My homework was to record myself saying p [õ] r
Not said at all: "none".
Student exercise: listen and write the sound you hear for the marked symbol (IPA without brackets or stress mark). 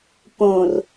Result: õ